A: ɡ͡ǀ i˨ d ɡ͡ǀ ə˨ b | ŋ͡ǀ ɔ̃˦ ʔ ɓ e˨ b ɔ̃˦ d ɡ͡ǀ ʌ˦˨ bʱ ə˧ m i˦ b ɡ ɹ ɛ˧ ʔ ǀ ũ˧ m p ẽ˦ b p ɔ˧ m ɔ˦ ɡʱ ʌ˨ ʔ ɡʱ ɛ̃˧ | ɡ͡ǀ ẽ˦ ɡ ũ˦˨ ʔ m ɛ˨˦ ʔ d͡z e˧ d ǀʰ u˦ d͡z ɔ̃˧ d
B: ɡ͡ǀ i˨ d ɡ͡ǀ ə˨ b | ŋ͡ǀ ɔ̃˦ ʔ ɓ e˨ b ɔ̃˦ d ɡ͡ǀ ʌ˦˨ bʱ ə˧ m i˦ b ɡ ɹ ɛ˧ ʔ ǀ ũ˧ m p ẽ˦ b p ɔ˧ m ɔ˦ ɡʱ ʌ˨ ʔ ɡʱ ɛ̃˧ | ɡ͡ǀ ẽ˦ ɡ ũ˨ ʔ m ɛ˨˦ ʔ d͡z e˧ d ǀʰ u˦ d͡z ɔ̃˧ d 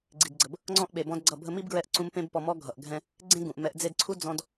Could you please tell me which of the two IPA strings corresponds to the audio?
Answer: B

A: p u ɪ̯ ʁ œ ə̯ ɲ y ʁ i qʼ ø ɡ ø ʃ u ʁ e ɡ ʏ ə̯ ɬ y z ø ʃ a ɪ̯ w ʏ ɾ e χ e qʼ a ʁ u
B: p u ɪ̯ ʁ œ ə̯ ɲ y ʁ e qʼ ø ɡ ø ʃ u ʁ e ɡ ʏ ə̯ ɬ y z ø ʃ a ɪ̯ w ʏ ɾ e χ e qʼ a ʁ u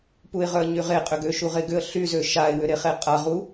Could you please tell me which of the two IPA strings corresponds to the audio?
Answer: B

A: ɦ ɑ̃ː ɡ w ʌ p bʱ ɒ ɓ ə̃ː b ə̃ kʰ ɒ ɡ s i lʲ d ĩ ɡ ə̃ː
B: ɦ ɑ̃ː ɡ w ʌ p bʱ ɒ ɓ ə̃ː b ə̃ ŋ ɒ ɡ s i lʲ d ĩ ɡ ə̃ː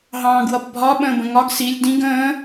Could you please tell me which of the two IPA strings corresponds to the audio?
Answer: B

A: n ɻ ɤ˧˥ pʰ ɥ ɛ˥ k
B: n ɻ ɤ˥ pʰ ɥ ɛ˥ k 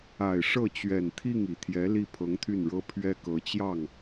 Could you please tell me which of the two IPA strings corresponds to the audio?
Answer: B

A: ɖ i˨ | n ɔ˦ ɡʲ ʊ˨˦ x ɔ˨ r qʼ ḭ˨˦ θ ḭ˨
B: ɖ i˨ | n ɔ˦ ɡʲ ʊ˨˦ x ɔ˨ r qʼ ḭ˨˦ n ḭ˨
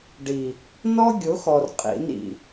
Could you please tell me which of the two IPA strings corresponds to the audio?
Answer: B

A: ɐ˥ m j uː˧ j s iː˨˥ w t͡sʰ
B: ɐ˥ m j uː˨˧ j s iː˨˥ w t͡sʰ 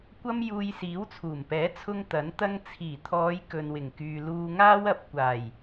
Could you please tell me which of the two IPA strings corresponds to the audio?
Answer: A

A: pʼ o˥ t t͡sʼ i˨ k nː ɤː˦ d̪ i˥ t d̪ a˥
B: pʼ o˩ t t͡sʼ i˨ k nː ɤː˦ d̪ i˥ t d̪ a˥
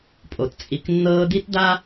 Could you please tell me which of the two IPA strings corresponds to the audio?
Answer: B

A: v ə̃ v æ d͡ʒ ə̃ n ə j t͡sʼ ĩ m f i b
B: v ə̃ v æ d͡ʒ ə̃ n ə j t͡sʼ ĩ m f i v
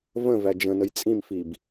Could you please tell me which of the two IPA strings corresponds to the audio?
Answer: A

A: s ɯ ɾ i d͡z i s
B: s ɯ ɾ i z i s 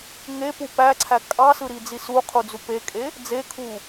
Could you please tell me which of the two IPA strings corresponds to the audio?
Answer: A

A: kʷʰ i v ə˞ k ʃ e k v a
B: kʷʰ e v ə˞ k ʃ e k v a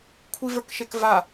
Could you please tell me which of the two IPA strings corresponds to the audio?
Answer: A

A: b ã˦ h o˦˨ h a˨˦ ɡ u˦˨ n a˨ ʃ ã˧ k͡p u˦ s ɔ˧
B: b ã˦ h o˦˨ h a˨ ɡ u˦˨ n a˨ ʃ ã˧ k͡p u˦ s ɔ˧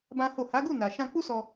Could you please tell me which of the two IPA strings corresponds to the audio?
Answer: A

